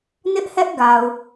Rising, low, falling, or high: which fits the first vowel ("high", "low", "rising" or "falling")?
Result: high